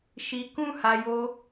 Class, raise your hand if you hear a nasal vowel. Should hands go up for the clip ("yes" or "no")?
yes